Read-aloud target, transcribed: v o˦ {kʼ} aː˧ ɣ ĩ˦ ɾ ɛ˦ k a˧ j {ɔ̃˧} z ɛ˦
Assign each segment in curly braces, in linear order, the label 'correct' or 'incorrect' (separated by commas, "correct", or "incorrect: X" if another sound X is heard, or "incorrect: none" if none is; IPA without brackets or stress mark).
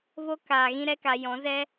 incorrect: k, incorrect: ɔ̃˨˦